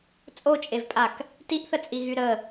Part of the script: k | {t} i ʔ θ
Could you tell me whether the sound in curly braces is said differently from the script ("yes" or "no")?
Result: no